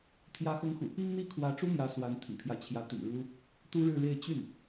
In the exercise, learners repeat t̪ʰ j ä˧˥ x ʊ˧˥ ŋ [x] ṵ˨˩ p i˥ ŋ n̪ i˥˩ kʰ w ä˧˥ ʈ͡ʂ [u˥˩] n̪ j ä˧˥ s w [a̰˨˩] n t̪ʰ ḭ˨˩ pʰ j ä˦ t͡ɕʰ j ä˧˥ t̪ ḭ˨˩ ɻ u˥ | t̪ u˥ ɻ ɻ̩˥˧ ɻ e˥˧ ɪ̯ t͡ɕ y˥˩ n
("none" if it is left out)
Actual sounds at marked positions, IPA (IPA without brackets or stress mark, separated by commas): x, u˥, a˧˥